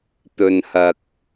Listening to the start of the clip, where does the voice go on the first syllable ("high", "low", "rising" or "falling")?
low